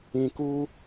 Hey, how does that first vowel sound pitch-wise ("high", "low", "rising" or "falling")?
low